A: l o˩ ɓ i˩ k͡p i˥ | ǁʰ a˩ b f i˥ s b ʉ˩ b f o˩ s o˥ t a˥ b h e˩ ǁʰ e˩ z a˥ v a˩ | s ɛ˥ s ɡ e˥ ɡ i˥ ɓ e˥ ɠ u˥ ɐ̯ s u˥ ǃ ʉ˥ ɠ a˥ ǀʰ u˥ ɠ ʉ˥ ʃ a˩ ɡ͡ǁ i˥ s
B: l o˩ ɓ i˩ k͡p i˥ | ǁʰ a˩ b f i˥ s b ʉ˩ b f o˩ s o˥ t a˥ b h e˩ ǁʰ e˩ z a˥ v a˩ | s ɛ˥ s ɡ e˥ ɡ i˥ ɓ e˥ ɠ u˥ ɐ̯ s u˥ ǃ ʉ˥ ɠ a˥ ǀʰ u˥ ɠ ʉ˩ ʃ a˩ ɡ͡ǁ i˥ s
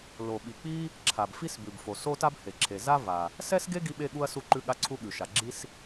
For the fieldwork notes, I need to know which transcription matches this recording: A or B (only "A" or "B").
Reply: B